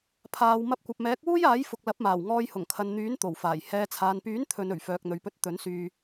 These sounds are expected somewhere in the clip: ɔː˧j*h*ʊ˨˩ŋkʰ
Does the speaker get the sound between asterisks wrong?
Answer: no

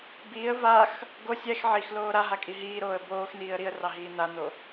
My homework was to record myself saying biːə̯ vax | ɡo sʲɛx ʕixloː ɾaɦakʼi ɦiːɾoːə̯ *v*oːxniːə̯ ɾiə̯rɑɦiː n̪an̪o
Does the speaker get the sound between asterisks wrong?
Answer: yes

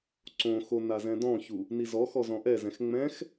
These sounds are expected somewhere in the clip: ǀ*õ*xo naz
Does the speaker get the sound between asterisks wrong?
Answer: no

